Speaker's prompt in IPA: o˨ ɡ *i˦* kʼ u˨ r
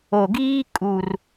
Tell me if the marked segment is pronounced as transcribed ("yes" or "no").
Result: no